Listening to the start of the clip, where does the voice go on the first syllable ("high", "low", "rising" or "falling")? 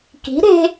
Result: rising